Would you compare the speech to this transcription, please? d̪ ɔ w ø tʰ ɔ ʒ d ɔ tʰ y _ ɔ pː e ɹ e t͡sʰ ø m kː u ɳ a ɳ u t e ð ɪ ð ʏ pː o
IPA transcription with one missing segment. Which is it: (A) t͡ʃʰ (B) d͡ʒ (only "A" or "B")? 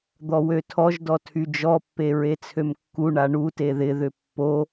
B